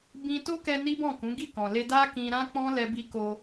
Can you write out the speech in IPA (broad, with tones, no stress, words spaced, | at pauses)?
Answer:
bĩ˧to˦kɛ˧ ni˦bɔ̃˦˨kũ˨˦ ɡi˦˨kɔ̃˨le˧ da˦kĩ˧ ɾã˦k͡pɔ̃˦lɛ˧bi˧ ko˧